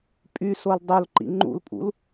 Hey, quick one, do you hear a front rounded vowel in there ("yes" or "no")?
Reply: yes